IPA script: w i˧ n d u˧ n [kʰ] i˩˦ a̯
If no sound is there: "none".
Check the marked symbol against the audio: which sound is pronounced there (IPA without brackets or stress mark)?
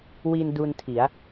tʰ